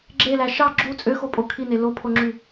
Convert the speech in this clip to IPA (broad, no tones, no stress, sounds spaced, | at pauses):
ɡ͡ǁ e l æ ʃ ɑ ɡ͡ǁ u t͡sʼ ø x o pʼ o kʰ i n e l o pʰ o ŋ͡ǁ y